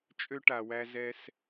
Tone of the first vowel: high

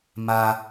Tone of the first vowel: high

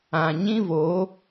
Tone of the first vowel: low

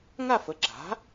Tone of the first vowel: falling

